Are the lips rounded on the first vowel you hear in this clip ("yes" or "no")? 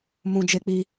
yes